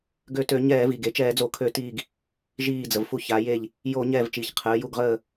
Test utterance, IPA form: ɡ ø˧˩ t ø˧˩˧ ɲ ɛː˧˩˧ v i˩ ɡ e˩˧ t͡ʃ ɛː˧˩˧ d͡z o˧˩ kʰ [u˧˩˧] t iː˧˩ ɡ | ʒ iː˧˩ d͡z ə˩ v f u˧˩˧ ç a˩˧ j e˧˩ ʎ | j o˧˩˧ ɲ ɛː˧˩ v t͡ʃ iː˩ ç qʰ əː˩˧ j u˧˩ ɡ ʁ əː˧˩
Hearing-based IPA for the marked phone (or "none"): ø˧˩˧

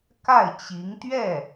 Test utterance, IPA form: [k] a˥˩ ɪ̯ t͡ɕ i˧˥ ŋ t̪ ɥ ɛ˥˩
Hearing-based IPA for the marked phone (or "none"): k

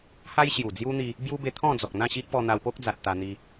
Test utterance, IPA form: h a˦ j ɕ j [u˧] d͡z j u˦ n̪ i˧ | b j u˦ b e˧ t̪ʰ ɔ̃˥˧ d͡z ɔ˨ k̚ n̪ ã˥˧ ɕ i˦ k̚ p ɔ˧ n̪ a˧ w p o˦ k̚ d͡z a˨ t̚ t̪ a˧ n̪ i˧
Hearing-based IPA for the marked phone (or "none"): u˨˩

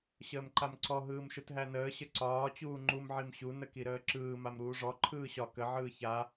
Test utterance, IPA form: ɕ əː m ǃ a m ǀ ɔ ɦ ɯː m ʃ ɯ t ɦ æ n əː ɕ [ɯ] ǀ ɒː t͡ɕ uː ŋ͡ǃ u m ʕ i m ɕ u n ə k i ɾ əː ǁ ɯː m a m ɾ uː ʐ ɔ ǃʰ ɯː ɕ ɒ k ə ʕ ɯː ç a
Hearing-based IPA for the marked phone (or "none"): ə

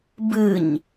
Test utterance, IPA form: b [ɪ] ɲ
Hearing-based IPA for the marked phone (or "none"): ɨ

